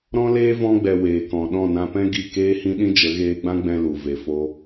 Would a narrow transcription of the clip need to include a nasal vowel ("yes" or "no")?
yes